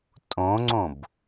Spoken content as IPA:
tʼ õ ŋ͡ǀ õ b

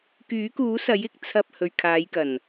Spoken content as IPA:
k yː˨˥ k uː˨˥ s ɐ˨˥ j ɪ˨ k̚ t͡sʰ ɐ˧ p̚ h ɵ˨ ɥ kʰ aː˨˧ j k ɐ˨˩ n

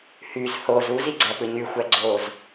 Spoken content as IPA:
h y z h o z u z i ɡ͡ǀ æ p ɯ ɲ y xʷ æ ɡ͡ǀ oː z

